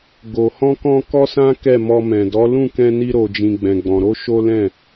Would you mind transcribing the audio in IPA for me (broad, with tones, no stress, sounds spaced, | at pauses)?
ɡ o˨ h ɔ̃˧ k ɔ̃˧ k ɔ˦ s ã˦ k ɛ˦˨ m ɔ˧ m ɛ̃˨ d ɔ˨˦ l ũ˦˨ k ɛ̃˧ n i˧ ɾ o˨ d͡ʒ ĩ˨ ɡ͡b ɛ̃˨ ɡ͡b ɔ̃˨ ɾ o˧ ʃ o˦ l ɛ̃˦˨